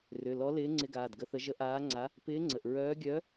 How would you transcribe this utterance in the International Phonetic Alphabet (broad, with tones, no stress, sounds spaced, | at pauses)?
r ʏ˩˧˩ l ɔ˧˥ l ɪː˧˥ ŋ͡ǀ ɪ˧˥ ɡ aː˩˧˩ d ɡ ə˧˥ θ ə˧˥ ʒ ə˧˥ ʔ aː˧˥ ŋ͡ǀ a˧˥ | p ɪː˧˥ ŋ͡ǀ ə˩˧˩ ʔ ɹ œː˧˥ ɡʲ œ˧˥